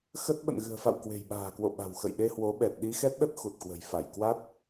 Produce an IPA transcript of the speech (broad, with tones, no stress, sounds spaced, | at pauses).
x ə˦˥ t̚ ɓ ə̰˧˨ n ɣ ɨ̤˨˩ ə̯ f a̰˧˨ w k w e̤˨˩ j ɓ a̤ː˨˩ k w o̰˧˨ ɓ a̤˨˩ w x ə̰˧˨ j ɗ e˧ h w o˨˦ ɓ ɛ˨˩ t̚ ɗ i˧ x ɛ˦˥ t̚ ɗ ə˦˥ t̚ x u˨˩ t̚ k w ə̤˨˩ j f a˧˩ j k w a˦˥ t̚